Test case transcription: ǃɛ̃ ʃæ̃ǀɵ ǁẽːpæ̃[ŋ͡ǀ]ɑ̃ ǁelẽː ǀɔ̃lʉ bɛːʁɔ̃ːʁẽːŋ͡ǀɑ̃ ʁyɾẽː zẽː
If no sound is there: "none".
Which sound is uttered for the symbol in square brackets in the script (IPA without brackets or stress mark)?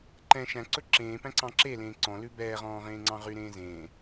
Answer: ǀ